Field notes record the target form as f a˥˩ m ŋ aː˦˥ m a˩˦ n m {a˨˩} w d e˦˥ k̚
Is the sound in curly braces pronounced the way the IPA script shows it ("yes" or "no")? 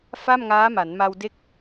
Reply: no